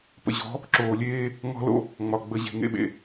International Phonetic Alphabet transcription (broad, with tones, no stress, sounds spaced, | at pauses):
p ə̰˨ ʑ ɔ̤˨˦ | ǁ oː˨ lʲ eː˦ | ŋ ɔ̤˦ l o̰˦ | ŋ͡m ɒ˨ ɡ͡b ə˨ ʑ e̤˨ ŋ ḛ˨ ɓ ḛ˨